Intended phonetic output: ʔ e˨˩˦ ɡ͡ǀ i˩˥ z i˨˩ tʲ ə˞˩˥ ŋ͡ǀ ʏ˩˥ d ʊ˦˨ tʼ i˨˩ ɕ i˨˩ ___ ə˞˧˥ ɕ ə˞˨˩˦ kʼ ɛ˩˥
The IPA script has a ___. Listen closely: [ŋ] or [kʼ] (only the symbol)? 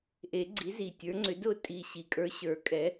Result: kʼ